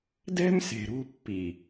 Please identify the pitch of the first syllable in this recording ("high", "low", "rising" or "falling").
high